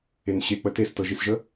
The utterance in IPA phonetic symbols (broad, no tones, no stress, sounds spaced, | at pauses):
e n ɕ e k͡p ə t e s t ɤ ʒ i s ʒ ə